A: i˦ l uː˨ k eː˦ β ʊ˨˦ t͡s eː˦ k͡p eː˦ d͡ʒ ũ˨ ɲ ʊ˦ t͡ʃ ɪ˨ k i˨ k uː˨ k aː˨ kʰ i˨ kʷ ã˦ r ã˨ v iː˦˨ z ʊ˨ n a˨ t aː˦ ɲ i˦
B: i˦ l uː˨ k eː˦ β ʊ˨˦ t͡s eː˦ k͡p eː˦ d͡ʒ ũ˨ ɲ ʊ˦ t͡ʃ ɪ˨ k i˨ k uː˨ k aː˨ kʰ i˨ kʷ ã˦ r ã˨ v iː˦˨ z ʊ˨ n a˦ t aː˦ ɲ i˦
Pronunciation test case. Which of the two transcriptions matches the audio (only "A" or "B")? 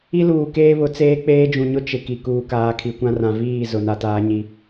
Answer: A